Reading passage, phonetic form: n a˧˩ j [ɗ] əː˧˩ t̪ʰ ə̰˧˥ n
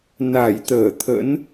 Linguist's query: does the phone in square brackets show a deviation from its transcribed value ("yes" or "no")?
yes